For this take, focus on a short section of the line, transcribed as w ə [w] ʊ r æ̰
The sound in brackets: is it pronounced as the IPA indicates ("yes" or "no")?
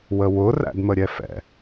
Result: yes